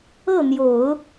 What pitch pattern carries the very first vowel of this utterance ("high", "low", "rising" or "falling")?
falling